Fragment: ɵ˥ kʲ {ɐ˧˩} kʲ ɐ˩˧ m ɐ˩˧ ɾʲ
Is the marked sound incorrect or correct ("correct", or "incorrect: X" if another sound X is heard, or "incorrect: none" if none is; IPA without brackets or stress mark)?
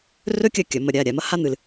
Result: correct